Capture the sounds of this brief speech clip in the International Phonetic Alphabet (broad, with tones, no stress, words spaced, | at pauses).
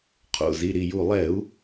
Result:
qʰo̰˩˧˩zi˩˧˩ɾi˧˩ju˧˩ lˠɛ˧˩˧u̯